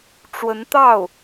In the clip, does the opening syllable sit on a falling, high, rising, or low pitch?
rising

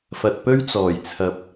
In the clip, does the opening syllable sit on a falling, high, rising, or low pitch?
low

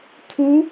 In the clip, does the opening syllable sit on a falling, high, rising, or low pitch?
rising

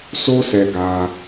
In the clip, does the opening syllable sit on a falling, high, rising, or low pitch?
high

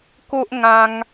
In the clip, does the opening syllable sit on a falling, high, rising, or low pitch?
high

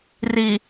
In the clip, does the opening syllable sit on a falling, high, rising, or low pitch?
low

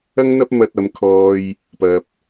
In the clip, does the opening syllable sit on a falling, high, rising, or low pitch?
high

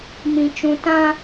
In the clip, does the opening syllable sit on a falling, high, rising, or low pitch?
low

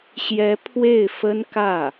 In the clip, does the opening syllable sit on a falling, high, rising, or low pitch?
rising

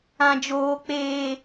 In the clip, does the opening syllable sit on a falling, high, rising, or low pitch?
low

